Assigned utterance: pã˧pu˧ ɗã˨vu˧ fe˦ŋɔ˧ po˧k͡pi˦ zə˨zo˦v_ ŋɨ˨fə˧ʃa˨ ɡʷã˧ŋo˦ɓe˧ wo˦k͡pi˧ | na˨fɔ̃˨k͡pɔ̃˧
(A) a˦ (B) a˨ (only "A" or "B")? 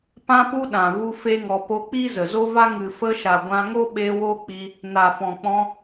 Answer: A